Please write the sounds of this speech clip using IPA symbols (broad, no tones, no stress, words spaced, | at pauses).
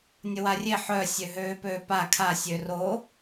nʲəwarʲe ħœ sʲøɦøːpøːpa kʰa sʲøro